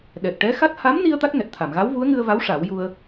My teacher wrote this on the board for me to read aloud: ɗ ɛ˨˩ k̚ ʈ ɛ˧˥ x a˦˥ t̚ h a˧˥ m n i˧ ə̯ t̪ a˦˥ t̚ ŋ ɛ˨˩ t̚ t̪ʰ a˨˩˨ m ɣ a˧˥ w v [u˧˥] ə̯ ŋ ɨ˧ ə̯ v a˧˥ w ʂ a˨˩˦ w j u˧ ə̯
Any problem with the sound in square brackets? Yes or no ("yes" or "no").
no